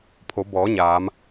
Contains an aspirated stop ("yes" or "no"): yes